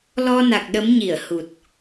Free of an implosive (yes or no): no